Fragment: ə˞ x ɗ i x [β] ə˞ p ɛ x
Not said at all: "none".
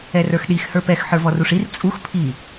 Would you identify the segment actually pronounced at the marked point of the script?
h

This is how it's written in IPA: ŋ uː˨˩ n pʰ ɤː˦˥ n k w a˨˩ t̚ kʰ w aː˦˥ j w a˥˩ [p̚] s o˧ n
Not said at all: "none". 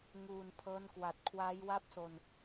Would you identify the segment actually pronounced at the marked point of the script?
p̚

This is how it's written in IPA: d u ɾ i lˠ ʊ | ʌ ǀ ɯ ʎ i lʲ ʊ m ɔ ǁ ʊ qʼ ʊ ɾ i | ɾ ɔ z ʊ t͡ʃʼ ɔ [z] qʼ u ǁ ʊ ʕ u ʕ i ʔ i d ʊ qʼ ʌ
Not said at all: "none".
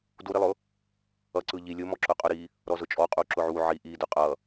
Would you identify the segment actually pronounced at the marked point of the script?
none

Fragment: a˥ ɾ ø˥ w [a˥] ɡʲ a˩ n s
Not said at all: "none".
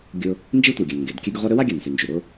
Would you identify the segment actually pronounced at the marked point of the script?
a˥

